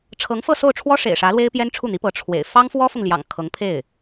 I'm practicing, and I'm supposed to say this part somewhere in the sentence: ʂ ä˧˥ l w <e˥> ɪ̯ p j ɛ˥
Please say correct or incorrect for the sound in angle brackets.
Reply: correct